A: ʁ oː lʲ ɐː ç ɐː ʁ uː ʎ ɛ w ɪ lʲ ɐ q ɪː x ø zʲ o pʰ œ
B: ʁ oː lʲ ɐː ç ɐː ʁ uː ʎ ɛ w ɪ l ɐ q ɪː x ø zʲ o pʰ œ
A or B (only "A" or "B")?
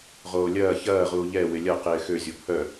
A